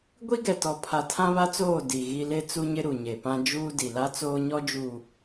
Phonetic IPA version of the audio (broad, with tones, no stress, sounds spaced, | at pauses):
ɡʷ i˦ ɡ ɛ˨ t ɔ˨ pʰ a˨ tʰ ã˦ β a˦ t͡s oː˦˨ d i˨ ɣ i˦ l e˦ t͡s u˦ ɲ ɪ˦ ɾ u˨ ɲ e˨ p ã˦ d͡ʒ uː˦ d i˨ l a˦ t͡s oː˦ ɲ ɔ˦ d͡ʒ uː˨